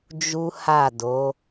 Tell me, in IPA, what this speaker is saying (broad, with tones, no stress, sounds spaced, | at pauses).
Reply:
d͡ʒ u˦ h a˦˨ d o˨˦